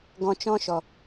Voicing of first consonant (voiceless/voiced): voiced